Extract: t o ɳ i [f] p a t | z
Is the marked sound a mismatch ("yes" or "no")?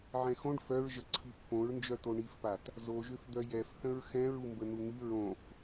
no